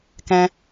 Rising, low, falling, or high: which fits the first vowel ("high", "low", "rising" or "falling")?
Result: high